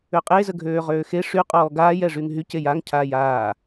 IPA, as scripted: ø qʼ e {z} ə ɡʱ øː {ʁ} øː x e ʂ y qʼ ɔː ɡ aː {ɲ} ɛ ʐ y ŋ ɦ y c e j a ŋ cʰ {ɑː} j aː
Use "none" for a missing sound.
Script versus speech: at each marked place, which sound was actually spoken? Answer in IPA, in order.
z, ʁ, j, aː

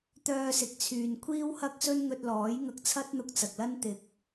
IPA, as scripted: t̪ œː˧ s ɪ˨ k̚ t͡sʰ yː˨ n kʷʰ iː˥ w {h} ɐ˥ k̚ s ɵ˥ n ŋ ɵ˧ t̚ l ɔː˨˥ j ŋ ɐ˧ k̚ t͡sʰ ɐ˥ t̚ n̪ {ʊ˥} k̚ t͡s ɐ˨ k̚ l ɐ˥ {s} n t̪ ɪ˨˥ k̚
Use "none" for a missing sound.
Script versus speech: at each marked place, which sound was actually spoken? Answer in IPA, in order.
h, ʊ˧, none

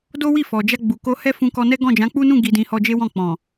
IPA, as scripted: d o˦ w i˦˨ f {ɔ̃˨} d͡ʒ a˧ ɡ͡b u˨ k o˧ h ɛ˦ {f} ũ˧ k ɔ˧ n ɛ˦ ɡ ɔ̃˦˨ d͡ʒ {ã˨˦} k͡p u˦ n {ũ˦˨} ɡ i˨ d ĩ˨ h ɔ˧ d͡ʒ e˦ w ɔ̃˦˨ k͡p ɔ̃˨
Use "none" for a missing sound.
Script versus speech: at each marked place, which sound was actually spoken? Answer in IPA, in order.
ɔ˨, f, ã˨˦, ũ˦˨

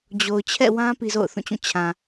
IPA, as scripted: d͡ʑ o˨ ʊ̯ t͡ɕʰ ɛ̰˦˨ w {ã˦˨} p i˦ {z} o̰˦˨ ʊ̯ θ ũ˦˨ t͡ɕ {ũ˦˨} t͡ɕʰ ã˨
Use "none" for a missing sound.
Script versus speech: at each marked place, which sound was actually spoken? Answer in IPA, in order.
ã˦, z, ũ˦˨

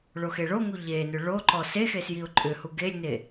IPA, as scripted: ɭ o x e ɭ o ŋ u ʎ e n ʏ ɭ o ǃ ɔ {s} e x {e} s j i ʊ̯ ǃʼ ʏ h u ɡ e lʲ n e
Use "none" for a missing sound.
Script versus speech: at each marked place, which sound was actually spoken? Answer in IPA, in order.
s, e

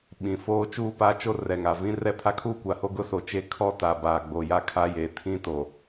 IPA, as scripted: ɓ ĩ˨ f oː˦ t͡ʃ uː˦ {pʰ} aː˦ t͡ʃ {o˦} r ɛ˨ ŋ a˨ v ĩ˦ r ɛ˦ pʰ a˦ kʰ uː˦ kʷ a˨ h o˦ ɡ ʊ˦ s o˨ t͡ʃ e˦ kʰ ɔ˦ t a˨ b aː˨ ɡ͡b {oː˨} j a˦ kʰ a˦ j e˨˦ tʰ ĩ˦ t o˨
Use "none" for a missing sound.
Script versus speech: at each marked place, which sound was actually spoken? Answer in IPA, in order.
p, o˦, o˨

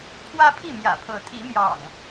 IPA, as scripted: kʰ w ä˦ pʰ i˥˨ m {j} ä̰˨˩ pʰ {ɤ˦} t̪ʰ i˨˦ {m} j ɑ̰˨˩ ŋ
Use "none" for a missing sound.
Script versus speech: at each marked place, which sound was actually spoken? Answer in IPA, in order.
j, ɤ˨˦, m

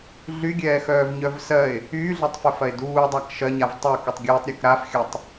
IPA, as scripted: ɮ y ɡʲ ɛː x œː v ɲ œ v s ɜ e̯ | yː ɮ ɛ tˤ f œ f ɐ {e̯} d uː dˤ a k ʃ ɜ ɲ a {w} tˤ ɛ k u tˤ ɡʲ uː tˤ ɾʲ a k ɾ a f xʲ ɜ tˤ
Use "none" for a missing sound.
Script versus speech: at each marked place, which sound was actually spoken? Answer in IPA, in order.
e̯, v

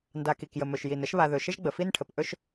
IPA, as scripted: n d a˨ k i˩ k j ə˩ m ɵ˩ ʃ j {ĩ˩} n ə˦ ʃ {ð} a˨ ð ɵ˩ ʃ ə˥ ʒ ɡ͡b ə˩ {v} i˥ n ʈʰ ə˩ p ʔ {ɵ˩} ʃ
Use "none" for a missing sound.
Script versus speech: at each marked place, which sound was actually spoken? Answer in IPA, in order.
i˩, β, f, ɵ˥

